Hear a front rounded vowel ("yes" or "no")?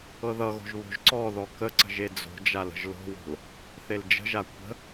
no